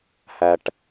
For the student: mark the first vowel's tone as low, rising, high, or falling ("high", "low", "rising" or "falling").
low